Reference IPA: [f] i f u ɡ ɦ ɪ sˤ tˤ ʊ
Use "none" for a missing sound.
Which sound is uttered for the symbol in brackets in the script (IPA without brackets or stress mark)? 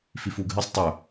f